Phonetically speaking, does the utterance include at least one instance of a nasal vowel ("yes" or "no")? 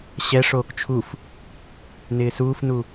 no